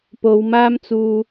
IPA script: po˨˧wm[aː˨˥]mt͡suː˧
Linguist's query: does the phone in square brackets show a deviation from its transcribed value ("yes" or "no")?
yes